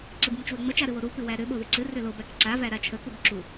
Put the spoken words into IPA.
ǀɨbmət͡ʃwʏŋ͡mə t͡ʃaɾɨwoɾu pɨwæɾʏ ɓoðɨǀɨ rʏlob ækǀa væɾat͡ʃʰə kubǁu

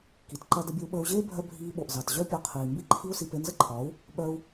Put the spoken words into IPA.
ki˨tǃɐ˦ də˧bʲe˧u̯ɓəː˧u̯ʑeː˦ bʱœ˧ bʱiː˧ɓo˨ʔzɑ˨t ʑœ˦pʲɒ˧qʰiː˨ mbi˦ǃʰi˦u̯si˧ pe˧nzə˦ǃʰɒ˨˦u̯ | ɓœ˧u̯

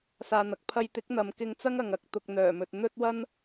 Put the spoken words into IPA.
saː˧n̪ɐ˨k̚ pʰɐ˧jt̪ɪ˨˥k̚n̪ɐ˨m kɪ˧ŋt͡sɐ˥ŋ ɐ˨ŋɐ˧k̚ t̪ʊ˨k̚ n̪œː˨˩mɵ˨t̚ n̪ɵ˥t̚ wɐ˥n

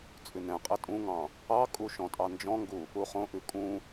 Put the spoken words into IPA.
t͡sʼʉnɛ̃qʼɘ tʼũŋɑ̃ | ɑkʼu ʃɔ̃tʼɑnd͡ʒɔ̃ŋɡu | uχõʔʉ kʼũ

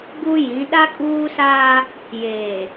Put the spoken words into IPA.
ɡu˦jĩ˨˦ ɗa˦kʼuː˦saː˦ | jeː˨

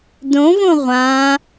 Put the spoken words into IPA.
dõvõ ʁʷã

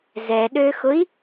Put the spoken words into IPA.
zɛɗøxʊi̯

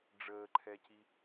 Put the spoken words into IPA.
ɖ͡ʐəːǃʰɛci

